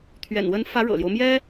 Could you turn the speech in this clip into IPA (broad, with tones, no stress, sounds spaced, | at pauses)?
t̪ʰ ɥ ɛ̰˨˩ n w ə˧˥ n f ä˧˥ ɻ ɤ̰˨˩ l j o˦ ʊ̯ m j ɛ˥